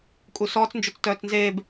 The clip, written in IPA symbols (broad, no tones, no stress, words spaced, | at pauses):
kʼusɔːt͡s nd͡ʒot͡stœːt͡snzeːb